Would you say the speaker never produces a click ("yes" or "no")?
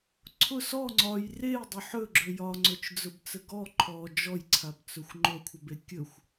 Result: no